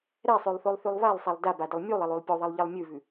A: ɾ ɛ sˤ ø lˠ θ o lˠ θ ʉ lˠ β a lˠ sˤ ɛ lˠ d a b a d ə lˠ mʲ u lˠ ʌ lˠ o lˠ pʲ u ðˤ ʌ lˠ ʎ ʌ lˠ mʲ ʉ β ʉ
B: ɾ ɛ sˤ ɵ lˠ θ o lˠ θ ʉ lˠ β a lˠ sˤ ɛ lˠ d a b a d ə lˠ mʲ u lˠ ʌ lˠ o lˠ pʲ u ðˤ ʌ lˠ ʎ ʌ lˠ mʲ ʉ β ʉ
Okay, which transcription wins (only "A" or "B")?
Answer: A